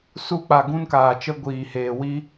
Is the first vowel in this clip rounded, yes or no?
yes